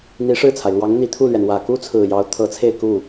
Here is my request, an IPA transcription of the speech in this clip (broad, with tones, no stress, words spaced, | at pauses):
n̪i˧˥ʂɻ̩˥˩t͡sʰa˩ɪ̯ lwɑ˧˥ŋn̪i˨˩t̪ʰu˥˩lɥɛ˩n wä˨˩ku˥t͡sʰɹ̩˨˩ jɑ˧˥ʊ̯t̪ʰɤ˧˥t͡sʰe˥˧ɪ̯ ku˥˩